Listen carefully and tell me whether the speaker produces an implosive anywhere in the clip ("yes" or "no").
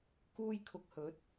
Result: no